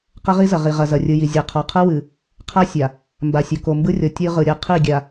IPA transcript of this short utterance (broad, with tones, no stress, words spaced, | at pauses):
qɐ˦ʁi˦zɐ˨ ʁi˨ʁɐ˨ zɐ˨rʲɯ˨ji˨ zʲa˨qʰɔ˨ qʰɯ˦wɨ˨ | qʰa˦ sʲa˨ | mba˨sʲo˨ ko˨mbɯ˦rʲɔ˨ tʲɯ˦ʁɯ˨ ɾʲɐ˦ qʰi˦˨ɡʲa˨